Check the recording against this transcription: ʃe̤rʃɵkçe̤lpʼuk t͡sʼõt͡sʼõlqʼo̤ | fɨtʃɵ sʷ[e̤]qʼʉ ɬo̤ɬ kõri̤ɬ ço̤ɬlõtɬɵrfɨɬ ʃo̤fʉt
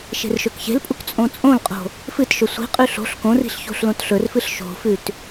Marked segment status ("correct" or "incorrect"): incorrect